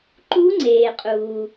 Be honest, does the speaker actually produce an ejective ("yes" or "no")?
yes